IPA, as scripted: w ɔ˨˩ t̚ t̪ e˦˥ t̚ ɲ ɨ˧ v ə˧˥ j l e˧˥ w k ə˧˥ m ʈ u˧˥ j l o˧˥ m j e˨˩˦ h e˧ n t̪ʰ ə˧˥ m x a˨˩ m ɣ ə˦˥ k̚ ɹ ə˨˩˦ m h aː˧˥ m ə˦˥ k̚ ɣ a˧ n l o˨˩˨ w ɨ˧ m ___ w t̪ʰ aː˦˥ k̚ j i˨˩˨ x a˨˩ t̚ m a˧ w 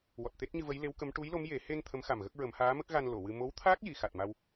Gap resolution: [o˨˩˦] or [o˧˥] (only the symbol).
o˧˥